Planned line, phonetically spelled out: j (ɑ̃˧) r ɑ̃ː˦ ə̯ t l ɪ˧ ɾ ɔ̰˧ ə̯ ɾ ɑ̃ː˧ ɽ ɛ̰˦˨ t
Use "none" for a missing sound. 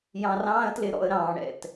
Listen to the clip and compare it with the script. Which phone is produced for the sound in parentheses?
ɑ̃˧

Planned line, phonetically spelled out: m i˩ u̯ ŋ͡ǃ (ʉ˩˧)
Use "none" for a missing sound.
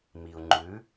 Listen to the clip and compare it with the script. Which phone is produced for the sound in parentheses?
ʉ˩˧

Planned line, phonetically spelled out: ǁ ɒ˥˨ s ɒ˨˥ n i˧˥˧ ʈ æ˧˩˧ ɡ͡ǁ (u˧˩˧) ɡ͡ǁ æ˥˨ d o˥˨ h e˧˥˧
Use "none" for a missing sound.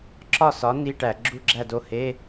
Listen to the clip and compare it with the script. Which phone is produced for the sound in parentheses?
u˥˨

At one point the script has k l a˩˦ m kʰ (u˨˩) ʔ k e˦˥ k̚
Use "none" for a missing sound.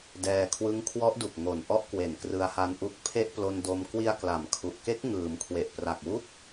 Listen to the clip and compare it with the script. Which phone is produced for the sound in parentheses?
u˨˩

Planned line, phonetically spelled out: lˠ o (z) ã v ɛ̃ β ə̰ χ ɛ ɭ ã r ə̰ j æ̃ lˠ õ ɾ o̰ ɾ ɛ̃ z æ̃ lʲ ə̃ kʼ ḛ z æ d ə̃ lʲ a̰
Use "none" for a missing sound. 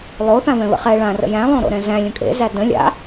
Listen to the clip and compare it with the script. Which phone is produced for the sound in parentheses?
θ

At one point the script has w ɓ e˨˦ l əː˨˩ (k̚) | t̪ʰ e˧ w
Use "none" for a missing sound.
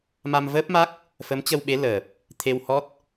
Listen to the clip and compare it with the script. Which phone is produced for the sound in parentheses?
p̚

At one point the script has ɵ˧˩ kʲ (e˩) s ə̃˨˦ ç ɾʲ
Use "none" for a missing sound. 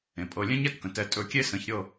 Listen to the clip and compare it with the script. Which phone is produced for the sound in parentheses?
e˦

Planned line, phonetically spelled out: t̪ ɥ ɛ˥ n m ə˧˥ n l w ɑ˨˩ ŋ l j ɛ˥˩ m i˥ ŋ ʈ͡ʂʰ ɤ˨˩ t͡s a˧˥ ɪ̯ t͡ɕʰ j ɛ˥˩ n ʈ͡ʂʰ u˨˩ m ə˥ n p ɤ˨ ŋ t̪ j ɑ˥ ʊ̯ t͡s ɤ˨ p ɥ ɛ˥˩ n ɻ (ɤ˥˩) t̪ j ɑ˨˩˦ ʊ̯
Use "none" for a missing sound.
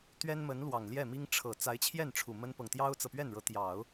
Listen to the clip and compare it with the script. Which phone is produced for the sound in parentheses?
ɤ˧˥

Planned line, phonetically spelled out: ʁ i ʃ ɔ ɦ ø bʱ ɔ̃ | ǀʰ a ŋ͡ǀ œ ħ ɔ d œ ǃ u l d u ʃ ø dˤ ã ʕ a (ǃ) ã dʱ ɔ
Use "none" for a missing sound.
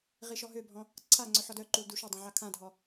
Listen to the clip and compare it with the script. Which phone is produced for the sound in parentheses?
kʰ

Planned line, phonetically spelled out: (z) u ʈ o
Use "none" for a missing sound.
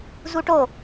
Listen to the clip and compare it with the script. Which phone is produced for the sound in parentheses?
z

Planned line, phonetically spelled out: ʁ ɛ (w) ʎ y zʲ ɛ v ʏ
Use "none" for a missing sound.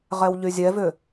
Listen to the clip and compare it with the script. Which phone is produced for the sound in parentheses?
w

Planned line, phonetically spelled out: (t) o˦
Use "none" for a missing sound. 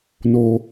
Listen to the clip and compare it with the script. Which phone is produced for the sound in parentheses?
n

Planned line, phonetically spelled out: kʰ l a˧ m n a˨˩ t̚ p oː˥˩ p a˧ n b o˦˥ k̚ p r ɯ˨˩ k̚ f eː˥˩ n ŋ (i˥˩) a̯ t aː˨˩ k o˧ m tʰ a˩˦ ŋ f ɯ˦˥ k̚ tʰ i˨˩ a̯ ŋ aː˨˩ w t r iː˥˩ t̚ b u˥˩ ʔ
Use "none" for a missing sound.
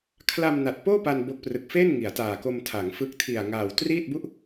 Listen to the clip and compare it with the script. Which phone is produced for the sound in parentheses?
i˩˦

